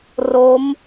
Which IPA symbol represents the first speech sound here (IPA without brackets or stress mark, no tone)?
r